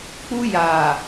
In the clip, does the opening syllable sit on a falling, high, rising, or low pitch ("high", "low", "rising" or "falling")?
high